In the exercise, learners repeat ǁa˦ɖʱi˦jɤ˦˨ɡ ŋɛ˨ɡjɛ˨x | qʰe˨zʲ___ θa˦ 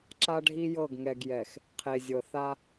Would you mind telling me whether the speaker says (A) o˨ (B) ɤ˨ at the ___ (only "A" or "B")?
B